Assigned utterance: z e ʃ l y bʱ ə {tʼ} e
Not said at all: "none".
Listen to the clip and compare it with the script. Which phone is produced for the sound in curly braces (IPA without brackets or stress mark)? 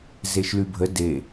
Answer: d